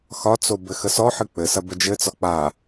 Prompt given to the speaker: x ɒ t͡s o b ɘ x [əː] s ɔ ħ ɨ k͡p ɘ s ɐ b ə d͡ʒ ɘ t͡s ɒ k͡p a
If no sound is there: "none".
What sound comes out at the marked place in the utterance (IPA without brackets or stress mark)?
ə